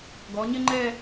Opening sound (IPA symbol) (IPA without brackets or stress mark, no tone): ɡ